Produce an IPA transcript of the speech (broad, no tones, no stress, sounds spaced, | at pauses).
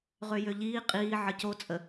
ʁ ø j ø ʎ iː qʼ iː ʕ ə c o t͡sʼ ə